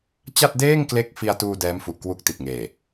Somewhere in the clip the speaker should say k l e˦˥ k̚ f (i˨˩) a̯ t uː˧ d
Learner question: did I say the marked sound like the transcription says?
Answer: no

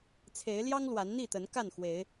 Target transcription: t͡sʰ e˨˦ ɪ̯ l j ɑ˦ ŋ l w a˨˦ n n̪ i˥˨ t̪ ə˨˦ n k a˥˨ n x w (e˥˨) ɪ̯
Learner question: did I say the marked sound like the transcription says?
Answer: no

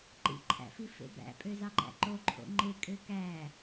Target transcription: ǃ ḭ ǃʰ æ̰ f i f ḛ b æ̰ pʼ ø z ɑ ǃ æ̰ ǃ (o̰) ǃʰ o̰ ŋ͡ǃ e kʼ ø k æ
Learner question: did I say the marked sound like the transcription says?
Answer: no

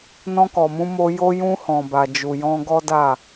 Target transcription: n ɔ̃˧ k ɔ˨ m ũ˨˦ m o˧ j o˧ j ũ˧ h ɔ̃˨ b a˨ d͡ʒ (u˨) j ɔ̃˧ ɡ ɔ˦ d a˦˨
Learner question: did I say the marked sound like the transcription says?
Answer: yes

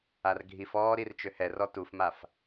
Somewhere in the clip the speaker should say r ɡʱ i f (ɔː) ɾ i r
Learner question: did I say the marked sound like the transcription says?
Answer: yes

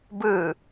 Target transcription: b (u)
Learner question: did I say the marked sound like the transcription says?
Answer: no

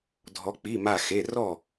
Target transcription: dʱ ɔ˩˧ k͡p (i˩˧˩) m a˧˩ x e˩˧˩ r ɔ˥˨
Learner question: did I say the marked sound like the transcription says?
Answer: yes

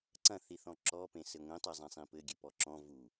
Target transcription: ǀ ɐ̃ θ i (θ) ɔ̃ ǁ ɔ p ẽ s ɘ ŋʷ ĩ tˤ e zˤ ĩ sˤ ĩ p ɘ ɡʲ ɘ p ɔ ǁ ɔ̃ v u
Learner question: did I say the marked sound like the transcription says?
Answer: yes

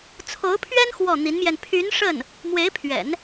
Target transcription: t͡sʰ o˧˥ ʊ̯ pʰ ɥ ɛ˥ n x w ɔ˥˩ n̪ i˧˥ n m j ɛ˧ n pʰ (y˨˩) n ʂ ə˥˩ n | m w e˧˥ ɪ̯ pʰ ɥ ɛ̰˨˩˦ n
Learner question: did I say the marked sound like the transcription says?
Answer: no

